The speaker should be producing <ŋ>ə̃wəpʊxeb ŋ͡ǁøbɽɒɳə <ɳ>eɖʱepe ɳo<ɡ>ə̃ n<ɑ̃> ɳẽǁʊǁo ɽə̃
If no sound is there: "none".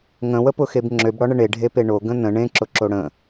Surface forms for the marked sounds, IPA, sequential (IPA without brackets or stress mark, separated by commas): ŋ, ɳ, ɡ, ə̃